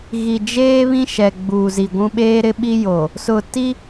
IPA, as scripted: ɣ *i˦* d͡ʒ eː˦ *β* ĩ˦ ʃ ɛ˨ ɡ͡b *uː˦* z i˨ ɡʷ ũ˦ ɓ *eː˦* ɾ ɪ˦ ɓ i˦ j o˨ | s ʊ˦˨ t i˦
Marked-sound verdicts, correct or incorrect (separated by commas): incorrect, correct, incorrect, correct